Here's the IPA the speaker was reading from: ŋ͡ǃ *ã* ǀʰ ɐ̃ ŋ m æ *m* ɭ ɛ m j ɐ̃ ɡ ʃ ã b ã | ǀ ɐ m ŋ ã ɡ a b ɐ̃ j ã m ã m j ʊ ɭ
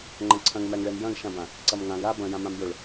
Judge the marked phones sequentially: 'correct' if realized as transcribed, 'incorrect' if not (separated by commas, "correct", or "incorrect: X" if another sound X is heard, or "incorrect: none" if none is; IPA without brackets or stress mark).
incorrect: ɐ̃, incorrect: ŋ